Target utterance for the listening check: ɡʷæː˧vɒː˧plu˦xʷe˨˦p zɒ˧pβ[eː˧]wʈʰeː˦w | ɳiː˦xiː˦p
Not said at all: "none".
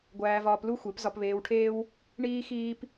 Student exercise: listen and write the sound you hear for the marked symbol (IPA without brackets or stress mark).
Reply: eː˧